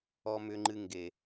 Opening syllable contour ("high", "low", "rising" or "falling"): high